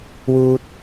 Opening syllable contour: low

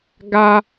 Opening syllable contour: low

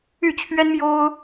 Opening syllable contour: falling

